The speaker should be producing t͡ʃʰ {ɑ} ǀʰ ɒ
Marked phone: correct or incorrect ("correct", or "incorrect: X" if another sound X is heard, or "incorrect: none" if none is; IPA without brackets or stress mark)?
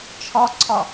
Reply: incorrect: ɒ